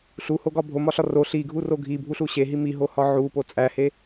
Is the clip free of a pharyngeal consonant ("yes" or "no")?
no